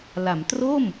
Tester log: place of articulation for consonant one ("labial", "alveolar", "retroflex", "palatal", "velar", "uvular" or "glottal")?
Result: alveolar